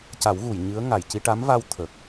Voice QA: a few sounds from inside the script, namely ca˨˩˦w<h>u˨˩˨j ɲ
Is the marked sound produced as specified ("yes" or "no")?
no